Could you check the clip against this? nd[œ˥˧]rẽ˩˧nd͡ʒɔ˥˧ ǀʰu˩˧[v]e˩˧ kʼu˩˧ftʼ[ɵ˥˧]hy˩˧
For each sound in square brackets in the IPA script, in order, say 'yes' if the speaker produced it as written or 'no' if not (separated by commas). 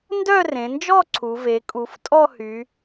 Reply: yes, yes, no